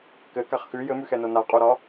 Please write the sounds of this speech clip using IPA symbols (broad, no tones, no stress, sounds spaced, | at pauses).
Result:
k ɘ k a χ x ʉ j ɘ m ʉ x ɛ n o n a qʼ o ɾ ɒ